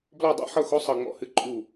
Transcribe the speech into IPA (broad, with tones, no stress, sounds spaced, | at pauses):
b l ɔ˦˨ dˤ ṵ˧˥ ħ ɤ˦˨ x o˧˥ sˤ ɤ˦˨ ŋ͡m ɔ̰˧˥ h ɨ˧˥ ǃʼ u˦˨